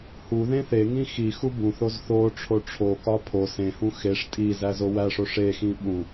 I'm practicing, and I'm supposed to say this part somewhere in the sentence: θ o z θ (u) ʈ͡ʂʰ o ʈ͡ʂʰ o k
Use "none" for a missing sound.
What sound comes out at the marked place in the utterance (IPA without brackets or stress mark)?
o